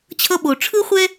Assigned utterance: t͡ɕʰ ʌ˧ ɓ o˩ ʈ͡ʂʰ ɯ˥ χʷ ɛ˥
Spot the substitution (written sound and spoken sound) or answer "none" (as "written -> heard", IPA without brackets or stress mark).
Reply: none